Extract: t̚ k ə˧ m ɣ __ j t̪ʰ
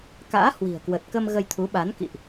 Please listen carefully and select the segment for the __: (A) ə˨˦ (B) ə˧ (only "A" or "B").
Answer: B